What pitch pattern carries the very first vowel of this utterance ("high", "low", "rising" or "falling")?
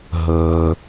low